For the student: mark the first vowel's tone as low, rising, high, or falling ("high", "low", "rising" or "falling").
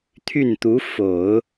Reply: falling